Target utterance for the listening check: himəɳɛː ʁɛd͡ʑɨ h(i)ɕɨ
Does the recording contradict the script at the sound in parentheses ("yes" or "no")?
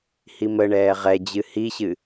no